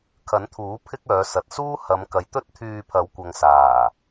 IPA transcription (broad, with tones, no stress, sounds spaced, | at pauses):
kʰ ɐ˨˥ n t̪ʰ uː˨˥ pʰ ɪ˥ k̚ œː˨˧ s ɐ˨ t̚ s uː˥ h ɐ˨˧ m k ɐ˨˧ j t̪ ɵ˥ t̚ t̪ʰ yː˧ pʰ ɐ˨˥ w kʷ ɐ˨ ŋ s aː˨˩